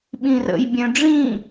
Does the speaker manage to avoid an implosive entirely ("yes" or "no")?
no